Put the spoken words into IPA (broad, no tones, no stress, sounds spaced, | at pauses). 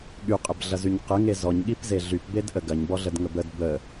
ɠ y qʼ ə b ɮ ɐ z y ɲ q ə ŋ e z ɔ ɲ ɠ i p z e ɮ y p b e d ʔ ə ɡ ɐ ɲ b ɔ ɮ ə d ŋ ə b ə d b ə